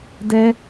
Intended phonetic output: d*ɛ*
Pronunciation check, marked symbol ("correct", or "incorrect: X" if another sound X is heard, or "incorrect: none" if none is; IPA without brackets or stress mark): correct